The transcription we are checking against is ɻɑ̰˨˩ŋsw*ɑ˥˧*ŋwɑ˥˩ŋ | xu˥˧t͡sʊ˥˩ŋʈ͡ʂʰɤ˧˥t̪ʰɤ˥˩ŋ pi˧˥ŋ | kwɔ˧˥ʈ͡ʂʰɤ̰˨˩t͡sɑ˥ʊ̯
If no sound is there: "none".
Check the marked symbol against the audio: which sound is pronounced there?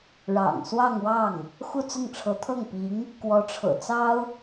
ɑ˥˧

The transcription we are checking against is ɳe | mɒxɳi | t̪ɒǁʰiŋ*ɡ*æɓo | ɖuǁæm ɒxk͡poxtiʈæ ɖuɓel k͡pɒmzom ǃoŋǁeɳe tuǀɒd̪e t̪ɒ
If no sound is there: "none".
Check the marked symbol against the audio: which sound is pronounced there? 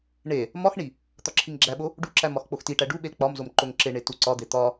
ɡ͡ǁ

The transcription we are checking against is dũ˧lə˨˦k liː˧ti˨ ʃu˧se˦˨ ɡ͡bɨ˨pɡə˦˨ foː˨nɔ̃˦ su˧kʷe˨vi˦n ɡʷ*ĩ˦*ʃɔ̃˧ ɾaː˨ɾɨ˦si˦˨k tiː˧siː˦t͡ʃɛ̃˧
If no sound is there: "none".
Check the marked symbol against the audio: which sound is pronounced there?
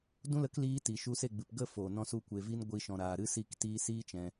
i˦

